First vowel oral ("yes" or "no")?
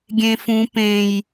no